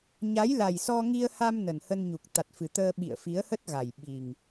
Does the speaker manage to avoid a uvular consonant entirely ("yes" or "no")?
yes